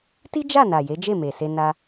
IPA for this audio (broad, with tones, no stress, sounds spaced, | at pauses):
t i˦ d͡ʒ a˦˨ n a˨ j e˨˦ d͡ʒ e˦˨ m e˨ s e˧ n a˦